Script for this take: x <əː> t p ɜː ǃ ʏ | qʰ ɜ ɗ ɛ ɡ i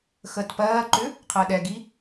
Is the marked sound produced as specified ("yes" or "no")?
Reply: yes